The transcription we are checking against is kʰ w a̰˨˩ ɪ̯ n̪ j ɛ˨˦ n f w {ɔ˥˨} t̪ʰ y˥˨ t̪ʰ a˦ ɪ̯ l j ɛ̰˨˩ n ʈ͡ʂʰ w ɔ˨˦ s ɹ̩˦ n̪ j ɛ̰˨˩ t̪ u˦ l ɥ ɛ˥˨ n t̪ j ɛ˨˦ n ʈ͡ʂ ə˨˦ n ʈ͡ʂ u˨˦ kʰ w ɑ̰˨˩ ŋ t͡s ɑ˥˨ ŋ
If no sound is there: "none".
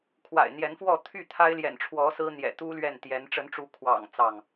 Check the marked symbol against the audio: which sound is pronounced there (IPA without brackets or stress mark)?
ɔ˥˨